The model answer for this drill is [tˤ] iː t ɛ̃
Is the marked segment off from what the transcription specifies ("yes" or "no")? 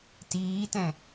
yes